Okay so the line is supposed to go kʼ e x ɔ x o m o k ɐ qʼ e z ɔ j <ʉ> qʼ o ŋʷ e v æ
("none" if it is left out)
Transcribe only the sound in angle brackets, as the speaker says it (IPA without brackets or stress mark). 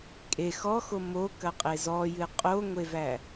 ɨ